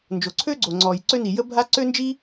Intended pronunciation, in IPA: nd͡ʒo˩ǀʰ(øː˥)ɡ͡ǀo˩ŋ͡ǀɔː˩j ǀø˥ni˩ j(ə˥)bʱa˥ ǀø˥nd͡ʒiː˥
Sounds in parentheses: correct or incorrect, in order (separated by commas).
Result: correct, correct